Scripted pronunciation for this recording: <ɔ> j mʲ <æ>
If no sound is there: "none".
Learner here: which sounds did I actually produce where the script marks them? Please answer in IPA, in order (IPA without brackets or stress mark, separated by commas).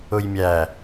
ʊ, æ